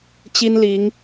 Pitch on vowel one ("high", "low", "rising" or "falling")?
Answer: high